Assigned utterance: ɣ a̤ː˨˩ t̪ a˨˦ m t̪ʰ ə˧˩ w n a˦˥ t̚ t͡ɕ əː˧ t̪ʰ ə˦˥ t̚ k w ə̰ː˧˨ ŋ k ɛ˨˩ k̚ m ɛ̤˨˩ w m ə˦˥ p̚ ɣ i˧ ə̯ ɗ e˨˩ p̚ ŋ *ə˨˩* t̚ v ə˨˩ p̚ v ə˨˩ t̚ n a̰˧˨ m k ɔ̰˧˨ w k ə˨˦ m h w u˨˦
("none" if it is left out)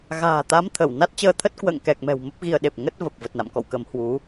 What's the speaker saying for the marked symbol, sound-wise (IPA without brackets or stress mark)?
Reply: ə˦˥